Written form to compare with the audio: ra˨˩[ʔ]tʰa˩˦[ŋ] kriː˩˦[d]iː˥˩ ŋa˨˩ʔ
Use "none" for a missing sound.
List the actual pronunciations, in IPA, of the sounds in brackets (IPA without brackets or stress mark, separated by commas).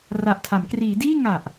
ʔ, m, d